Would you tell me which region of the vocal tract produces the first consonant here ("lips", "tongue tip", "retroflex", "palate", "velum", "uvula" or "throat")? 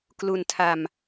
velum